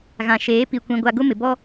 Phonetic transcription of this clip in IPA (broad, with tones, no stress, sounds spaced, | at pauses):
ɣ ã˨ ʃ eː˨˦ p i˨ kʷ ĩ˨ ɡʷ a˨ ɡ ʊ˦ m ɪ˨ b ɔ˦